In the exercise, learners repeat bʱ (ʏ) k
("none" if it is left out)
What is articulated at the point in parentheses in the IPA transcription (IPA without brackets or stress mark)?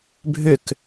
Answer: ʏ